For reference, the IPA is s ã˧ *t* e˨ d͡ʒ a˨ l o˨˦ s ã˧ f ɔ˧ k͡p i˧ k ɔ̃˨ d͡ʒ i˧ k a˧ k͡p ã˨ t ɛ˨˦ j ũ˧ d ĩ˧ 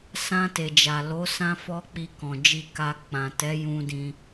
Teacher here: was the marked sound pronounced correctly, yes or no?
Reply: yes